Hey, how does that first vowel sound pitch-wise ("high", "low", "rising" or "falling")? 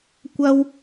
high